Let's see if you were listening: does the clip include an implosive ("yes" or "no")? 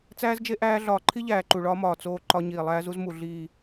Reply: no